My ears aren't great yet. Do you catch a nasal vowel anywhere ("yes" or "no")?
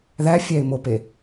no